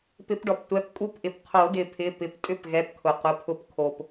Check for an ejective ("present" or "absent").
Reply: present